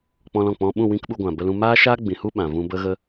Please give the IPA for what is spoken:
k͡pɔ̃˧lɔ̃˨k͡pɔ̃˧ɓũ˦˨ wĩ˦kɓu˧ɡʷã˨ bə˧lũ˧ maː˦ʃaː˦ ɡ͡bĩ˨hu˦ ɓã˨ vũ˧bə˦ɣə˦

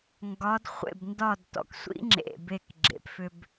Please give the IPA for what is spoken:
ŋɡɒ˧˥dχʷḛ˥˨b ndɒ˥˨d tɔ̰˧˩ksʷḭ˧˥ŋ͡ǁḛ˩˧˩be˧˩k ɡ͡ǁḛ˩pfʏ˧b

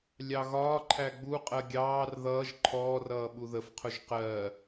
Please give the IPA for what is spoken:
lʲɑɣɒːǃʰæ ɡ͡buqʼɜ ɡʲɑːr ðʌːʒ ǃʰɔːrʌː ɓuðəfqʰʊʒ qɜ

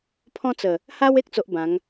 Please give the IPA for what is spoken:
pʰɔ̃˦t͡sə˨˩ | ha˦we˦k̚ t͡so˦ʔbã˨˦ŋ

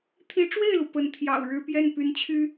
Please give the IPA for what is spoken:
t̪ʰi˧˥ʈ͡ʂwe˥˩ɪ̯lu˩ pə˧˥nt̪ʰjɑ̰˨˩ʊ̯ɻɻ̩˥ pjɛ˥˩npy˧˥nt͡ɕʰy˥

